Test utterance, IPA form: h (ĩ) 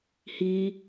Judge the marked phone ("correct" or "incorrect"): incorrect